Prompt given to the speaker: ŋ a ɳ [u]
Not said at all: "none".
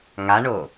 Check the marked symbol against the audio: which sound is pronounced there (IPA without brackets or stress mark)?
o